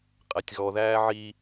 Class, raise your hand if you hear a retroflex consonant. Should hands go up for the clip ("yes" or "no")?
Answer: no